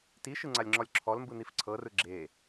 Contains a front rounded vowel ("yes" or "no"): no